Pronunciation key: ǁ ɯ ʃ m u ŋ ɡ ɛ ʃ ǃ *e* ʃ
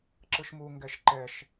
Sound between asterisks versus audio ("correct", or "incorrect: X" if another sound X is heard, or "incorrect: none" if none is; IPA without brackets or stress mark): incorrect: ɛ